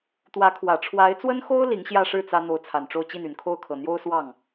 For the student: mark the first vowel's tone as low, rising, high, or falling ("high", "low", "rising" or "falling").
rising